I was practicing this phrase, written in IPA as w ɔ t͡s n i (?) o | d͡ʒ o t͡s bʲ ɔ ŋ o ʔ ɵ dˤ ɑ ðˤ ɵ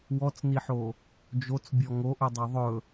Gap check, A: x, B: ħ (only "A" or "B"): B